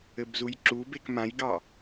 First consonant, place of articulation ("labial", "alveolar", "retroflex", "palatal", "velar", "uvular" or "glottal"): labial